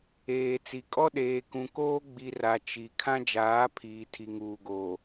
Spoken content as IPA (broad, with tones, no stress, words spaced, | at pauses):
eː˨ t͡si˨kʼɔ˦ ɗeː˨kũ˨koː˦ɡ͡bi˨ ra˨ t͡ʃi˨ kʰã˦d͡ʒaː˨˦ pʰiː˨ tʰi˨ŋuː˨ɡoː˨